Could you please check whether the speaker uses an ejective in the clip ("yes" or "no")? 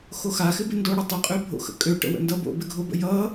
yes